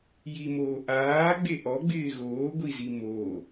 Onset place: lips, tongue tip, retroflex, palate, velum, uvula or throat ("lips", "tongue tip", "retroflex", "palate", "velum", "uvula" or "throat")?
palate